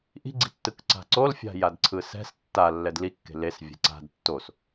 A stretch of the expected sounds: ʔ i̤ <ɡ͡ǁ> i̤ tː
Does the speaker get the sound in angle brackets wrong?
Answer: yes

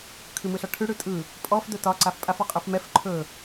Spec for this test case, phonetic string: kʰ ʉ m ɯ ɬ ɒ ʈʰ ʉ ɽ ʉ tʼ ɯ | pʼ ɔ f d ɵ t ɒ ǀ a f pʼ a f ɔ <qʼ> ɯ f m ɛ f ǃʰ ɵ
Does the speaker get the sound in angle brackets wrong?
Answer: no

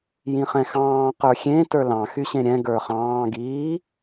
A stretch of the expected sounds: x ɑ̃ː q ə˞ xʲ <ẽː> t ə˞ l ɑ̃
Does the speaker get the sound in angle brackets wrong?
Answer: yes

